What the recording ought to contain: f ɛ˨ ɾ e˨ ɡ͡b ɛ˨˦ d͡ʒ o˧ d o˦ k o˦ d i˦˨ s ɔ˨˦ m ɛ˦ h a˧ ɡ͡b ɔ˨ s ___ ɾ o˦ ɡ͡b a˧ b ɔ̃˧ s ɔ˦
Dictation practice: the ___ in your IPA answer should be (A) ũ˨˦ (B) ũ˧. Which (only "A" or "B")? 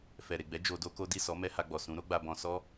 A